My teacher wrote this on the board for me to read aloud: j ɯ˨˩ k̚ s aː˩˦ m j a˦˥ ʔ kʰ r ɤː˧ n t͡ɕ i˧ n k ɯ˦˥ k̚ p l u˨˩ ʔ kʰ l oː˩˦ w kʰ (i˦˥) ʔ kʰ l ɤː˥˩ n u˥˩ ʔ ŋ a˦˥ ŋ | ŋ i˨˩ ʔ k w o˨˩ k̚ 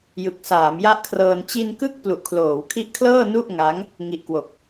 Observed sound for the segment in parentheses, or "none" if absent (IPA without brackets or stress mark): i˦˥